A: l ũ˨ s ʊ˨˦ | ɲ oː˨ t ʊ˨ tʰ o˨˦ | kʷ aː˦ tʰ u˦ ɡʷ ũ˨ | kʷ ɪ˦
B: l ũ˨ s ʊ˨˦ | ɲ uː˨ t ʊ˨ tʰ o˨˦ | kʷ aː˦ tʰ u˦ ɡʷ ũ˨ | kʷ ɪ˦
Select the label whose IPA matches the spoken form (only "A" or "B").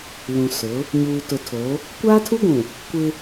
B